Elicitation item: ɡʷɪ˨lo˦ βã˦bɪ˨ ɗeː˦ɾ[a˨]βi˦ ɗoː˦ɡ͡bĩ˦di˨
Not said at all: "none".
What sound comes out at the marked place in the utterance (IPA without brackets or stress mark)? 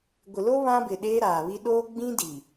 aː˨